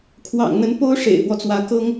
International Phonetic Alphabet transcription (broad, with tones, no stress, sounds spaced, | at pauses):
kʰ w ɑ̰˨˩ ŋ n̪ ə˧˥ n p o˥ ʊ̯ ʂ ḛ˨˩ ɪ̯ f w ɔ˦ t͡s w ä˧˥ k ɤ˥ ŋ